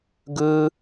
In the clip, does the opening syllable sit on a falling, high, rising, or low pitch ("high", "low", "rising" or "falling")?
high